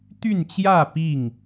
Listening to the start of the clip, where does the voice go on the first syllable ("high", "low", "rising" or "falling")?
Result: falling